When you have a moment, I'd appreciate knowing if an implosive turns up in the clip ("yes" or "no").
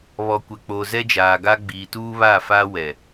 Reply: no